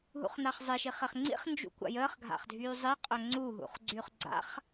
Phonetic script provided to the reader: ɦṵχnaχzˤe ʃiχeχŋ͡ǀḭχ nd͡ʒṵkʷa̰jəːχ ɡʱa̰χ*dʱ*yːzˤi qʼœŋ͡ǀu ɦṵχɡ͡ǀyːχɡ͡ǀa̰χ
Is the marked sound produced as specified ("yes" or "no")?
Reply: yes